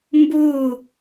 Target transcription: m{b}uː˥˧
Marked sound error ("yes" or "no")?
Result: no